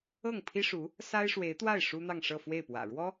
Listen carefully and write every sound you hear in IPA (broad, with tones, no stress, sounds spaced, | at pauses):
ɤ˥˩ ŋ pʰ i˥ ʂ u˧˥ | s a˥ ɪ̯ ʂ w e˧˥ ɪ̯ t̪ w a˥˩ ɪ̯ ʂ u˥ n̪ ɑ˥˧ ŋ ʂ ɤ˥˧ f w e˥˩ ɪ̯ p w ä̰˨˩ ɻ w ɔ˥